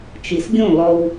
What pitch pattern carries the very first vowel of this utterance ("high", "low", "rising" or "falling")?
low